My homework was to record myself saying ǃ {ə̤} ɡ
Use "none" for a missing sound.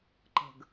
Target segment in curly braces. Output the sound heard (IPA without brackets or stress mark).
ə̤